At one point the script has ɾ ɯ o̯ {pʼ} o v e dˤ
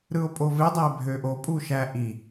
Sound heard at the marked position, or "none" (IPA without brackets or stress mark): pʼ